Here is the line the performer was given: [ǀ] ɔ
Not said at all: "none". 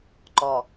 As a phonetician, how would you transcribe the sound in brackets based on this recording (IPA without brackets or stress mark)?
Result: ǃ